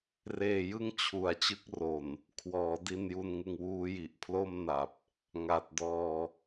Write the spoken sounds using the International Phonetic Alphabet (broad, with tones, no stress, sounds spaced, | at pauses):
r eː˧ j ɯ˥˩ ŋ t͡ɕʰ u˩˦ a̯ t͡ɕ ɯ˦˥ k̚ r o˨˩ n | kʰ w ɔː˩˦ d i˧ n j u˧ n ŋ ɯ˧ ŋ w uː˦˥ j i˨˩ ʔ pʰ l o˥˩ m n a˨˩ p̚ | ŋ a˨˩ t̚ d ɔː˧